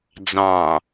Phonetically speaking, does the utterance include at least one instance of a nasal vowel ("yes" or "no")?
yes